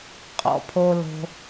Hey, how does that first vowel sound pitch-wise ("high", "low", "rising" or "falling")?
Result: low